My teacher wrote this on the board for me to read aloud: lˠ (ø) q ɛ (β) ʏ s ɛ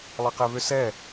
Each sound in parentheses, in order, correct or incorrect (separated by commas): incorrect, correct